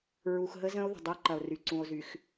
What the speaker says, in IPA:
ɹ u˨ x ɦ ə˦ z ə̃˦ o̯ ð ə̤˨ dˤ ə˦ o̯ ǃ ɐ˨ o̯ r y˨ ǀ ũ˨ o̯ z y˨ x

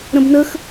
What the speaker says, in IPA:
ɾ ə̃ b n ə x

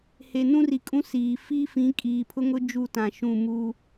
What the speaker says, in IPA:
h e˨ n ũ˦ r i˨ kʼ ũ˦ s iː˨ f i˦ f ĩ˨˦ kʼ iː˨ pʰ ʊ˦ ŋ ʊ˦ d͡ʒ u˦˨ t ã˨ ʃ ũ˦˨ m u˦

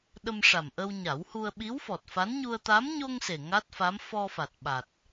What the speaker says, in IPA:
ɗ ə˧ m ʂ a˨˩ m ʔ ə˧ w ɲ a˨˩˦ w h u˧ ə̯ ɓ i˧˥ w f ɔ˨˩ t̚ f a˧˥ n ɲ u˧ ə̯ t̪ a˧˥ m ɲ o˧ ŋ s e˨˩ ŋ a˦˥ t̚ f a˧˥ m f ɔ˧ f a˨˩ t̚ ɓ a˨˩ t̚

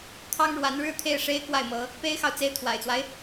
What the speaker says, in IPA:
t̪ʰ ɑ˥ ŋ ɻ w a˧˥ n ɻ ɻ̩˥˧ t̪ʰ e˥˩ ɪ̯ ʂ e˥ ɪ̯ k w a˥˩ ɪ̯ m ɤ˧˥ | p e˥ ɪ̯ x ɑ˨ ʊ̯ t͡s e˥ ɪ̯ t̪ʰ w a̰˨˩ ɪ̯ t͡s w a˦ ɪ̯

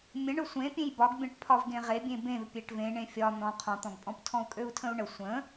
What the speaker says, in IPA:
mʲ ə̃ ɳ ø sʷ ẽ pʲ ẽ j b ɒ ɡ bʲ ɔ̃ ʈ pʰ ɒ v ɡ ẽ ʁ e bʲ ẽ b ẽ v pʲ e ʈ v ẽ ɳ ẽ fʲ ɒ n̪ ɔ̃ qʰ ɔ̃ t̪ ɔ̃ ɡ pʼ ɔ̃ p tʰ ɔ̃ u̯ kʼ ø u̯ tʰ ə̃ u̯ ɳ ə sʷ ə̃

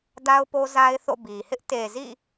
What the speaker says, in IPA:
d a˦ ʊ̯ p o˦ z a˦ ɪ̯ θ o̰˦˨ b i˨ h ɪ˦ ʔ t e˨ z ḭ˦˨

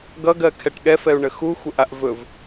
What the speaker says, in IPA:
ɡ ʌ ɡ ɜ kʰ ɛ ʈ ɠ ɛ f ɛ u̯ ɳ ə x u xʷ ə ʔ a ʔ v ɵ v

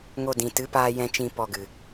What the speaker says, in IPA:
ŋ o˧ d ĩ˨ t ɨ˨˦ p aː˧ j ɛ̃˧ t͡ʃ ĩ˧ p ɔ˧ ɡ ɨ˨

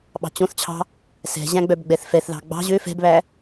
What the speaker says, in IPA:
ɓ ɑ̤ t͡ɕ õ θ t͡ɕʰ ɑ̤ | s ɛ̤ ʑ æ̃ ɡ͡b œ b ɡ͡b ɛ θ f ɛ θ ð ɑ̤ ɡ͡b ɑ̤ ʑ ø f ɛ̤ b β æ

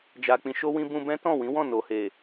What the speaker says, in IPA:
d͡ʒ a˨ k͡p ĩ˧ ʃ o˦ w ĩ˦ b ũ˧ b ɛ̃˦ t ɔ̃˦˨ w ĩ˨˦ w ɔ̃˦˨ n o˨ h e˨

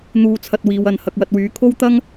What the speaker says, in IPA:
n̪ uː˧ t͡sʰ ɐ˧ t̚ w iː˨ w ɐ˨ n h ɐ˨ k̚ w ɐ˨ t̚ w yː˨˧ kʰ o˥ w t̪ ɐ˥ ŋ

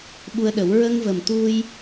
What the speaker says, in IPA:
ɓ u˧ ə̯ ɗ ə˨˩˦ w ɹ ə˧ ŋ v ə˨˩ m t̪ u˧ j

